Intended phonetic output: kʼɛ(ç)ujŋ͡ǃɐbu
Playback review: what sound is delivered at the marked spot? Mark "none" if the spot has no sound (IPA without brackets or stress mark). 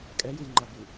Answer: j